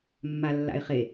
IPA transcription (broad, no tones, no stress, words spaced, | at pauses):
mːalːa̰ɪ̯χe